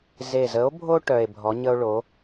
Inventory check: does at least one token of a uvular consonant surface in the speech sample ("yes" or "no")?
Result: no